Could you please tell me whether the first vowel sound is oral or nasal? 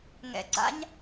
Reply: oral